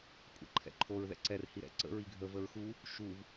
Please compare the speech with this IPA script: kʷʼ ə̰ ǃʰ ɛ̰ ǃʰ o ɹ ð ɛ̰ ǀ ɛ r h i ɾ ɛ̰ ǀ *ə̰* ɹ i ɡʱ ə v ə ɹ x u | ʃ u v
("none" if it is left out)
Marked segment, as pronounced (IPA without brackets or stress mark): ə̰